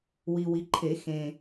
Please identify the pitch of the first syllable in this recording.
low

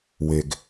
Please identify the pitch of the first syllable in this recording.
low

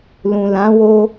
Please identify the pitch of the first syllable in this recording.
low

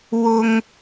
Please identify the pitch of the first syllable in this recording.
high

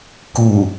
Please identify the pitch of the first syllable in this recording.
low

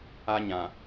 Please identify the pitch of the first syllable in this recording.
high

